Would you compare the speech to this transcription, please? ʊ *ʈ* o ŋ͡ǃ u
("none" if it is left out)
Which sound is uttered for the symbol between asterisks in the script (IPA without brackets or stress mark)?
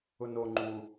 n